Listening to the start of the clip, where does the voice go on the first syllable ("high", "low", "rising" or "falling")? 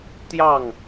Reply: falling